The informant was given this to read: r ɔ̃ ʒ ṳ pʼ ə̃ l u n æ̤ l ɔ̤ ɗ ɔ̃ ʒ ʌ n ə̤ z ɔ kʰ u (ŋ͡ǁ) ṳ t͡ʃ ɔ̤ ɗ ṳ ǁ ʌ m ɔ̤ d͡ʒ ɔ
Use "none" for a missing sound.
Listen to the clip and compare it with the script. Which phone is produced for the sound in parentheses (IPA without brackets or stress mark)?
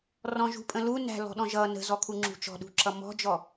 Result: ŋ͡ǁ